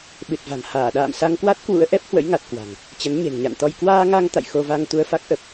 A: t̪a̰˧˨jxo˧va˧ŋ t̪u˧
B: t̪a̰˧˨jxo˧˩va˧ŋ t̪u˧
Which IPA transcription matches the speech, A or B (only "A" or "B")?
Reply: A